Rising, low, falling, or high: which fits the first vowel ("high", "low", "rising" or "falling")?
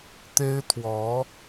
high